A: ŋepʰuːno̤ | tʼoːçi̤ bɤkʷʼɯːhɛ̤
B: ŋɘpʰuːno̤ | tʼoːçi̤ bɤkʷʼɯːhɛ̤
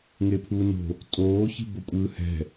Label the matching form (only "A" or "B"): A